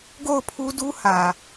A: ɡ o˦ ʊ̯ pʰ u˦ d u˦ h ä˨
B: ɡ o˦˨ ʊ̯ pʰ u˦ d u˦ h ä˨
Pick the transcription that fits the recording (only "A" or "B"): B